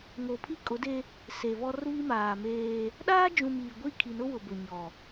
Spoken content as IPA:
ŋo˨pʰi˦kʼʊ˨˦de˦ | se˨βɔ˦r βi˦maː˨meː˦ | ɗaː˦d͡ʒũ˨m iː˨ɡʷi˦˨kʰi˨nʊ˦ wʊ˨bʊ˨ɲɔ˨

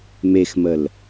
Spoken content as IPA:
mexməl

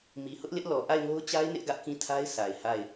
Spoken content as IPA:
mi˨hʊ˦ʔlɪ˦ʔ lɔ˨ ʔa˦˨ɪ̯ŋo˦ʊ̯t͡ɕa˦ɪ̯ nɪ˦ʔɡä˦ʔkĩ˦˨tʰa˦ɪ̯ sʰa˨ɪ̯ha˦˨ɪ̯

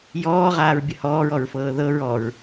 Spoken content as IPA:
jɔːʁaːɹbʲə hɔːɹɔɹfɤː ðɤɹ ɔɹ

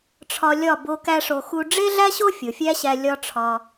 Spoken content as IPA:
ʈ͡ʂʰɒ˧lʲɒ˦˨ bo˧ kæ˦ʂo˧xu˦ ɖ͡ʐe˦ɮæ˦ɕo˦ fʲo˨fʲæ˦ɕæ˧ lʲɒ˦ʈ͡ʂʰɒ˧

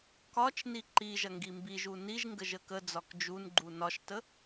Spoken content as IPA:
kɒt͡ʃni ǃi ʒɐŋɡimbiʒu niʒ ŋɡəʒəkəd͡zɒk d͡ʒunɡ͡ǃu nɒʃtə

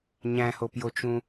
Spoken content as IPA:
ɲæ̃hopjot͡ʃũ

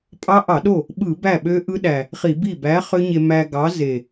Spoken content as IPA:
pʼɑ˦˥ʔɑ˧˩˧ɗo˥˩ | ɓɯ˧˩˧ bæ˥˩ɓø˦˥ʔɯ˦˥ɗæ˨˩ | χi˧˩˧bi˥˩ bæ˨˥ χø˦˥ɲe˧ mæ˧ɡɑ˨˥ze˨˩

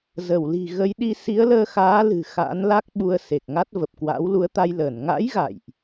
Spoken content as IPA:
zə˧˩wli̤˨˩ɣə˨˦jɗi˧ si˨˦ə̯ləː˧xaː˨˦lɨ̤˨˩ xa̰ː˧˥nla˦˥k̚ ɓu˧ə̯se˨˩k̚ŋa˦˥t̚ və˨˩p̚kwa̰ː˧˥wlu˨˦ə̯t̪a˧j ləː˧˩nŋa̰˧˥j ɣa̰˧˨jʔ

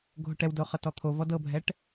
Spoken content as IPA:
ɡʱoʈɛwdo χɤtɔt̪ʰo vɔdɤbʱɛʈ

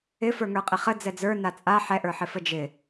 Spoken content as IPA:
ɪ fə˞ŋə˞qʼɪχə d͡zɛd͡zə˞ nat͡sʼa ħɛʔə˞ħɪfə d͡ʒɪ

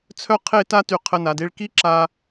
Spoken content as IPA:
t͡sʰœ˥qʰe˥˧ta˥ ty˧qʰə˧na˩˧de˥˧ɭ ki˥ǁa˧

